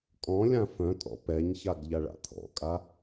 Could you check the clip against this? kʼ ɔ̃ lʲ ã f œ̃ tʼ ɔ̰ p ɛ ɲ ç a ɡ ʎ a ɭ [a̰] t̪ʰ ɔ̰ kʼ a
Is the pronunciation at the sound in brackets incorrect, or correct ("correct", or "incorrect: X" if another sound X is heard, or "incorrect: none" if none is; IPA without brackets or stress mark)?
correct